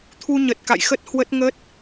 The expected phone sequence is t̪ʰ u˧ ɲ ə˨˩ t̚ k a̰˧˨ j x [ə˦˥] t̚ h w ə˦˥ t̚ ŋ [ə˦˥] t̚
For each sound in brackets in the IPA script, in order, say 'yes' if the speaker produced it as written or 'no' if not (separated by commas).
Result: yes, yes